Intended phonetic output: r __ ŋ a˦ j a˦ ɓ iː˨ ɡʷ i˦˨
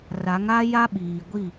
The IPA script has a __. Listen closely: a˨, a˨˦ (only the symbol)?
a˨˦